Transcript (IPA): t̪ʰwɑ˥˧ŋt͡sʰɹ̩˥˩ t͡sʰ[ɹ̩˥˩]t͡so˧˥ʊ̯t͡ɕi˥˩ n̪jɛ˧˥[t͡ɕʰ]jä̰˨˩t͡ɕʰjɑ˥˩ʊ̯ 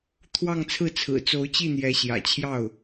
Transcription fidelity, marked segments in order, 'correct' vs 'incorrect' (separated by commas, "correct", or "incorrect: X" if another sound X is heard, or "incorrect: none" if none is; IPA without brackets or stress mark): incorrect: ɹ̩˨˩, incorrect: ɕ